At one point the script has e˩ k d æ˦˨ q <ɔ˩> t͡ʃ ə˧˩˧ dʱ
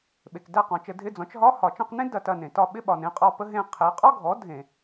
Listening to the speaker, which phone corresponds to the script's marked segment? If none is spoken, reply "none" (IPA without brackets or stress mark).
ɔ̃˩